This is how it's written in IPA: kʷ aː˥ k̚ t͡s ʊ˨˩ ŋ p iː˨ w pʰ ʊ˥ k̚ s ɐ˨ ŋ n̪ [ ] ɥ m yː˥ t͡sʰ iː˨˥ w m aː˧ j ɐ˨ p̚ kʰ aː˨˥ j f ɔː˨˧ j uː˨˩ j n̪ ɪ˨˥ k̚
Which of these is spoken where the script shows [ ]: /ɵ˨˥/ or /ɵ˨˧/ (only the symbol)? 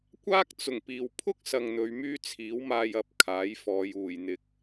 ɵ˨˧